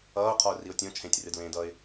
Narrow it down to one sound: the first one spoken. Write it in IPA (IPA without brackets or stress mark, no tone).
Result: ʌː